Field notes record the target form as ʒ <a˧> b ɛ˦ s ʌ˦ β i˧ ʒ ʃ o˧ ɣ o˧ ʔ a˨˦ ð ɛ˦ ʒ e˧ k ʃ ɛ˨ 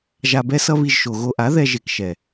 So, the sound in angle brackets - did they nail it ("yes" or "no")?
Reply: yes